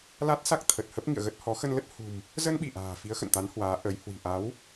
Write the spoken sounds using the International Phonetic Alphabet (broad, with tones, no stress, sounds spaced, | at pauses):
l a˦˥ t̚ s a˦˥ k̚ t̪ʰ ə˨˩ t̚ h ə˦˥ p̚ ŋ ḭ˧˨ ə̯ ɣ ə˦˥ t̚ h ɔ˨˦ x ə˧ n l ə˦˥ t̚ h ṳ˨˩ m | z ə˧ n ɓ i˧˩ ʔ a̤ː˨˩ f i˨˦ ə̯ x ə̰˧˨ n t̪ a˨˦ n h w aː˨˦ ʔ ə˨˦ j h w i̤˨˩ ʔ a˨˦ w